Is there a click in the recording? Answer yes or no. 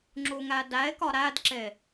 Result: yes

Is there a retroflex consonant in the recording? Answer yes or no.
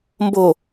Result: no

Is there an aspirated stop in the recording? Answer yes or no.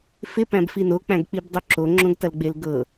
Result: no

